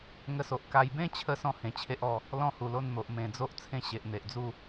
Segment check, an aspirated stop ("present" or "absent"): present